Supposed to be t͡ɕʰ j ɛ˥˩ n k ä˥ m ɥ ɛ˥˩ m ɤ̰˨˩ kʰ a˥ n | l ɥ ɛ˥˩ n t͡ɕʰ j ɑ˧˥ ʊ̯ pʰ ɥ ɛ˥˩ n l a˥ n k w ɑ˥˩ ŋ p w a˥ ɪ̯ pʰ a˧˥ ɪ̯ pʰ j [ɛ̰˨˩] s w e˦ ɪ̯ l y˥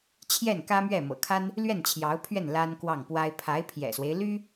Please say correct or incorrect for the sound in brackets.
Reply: correct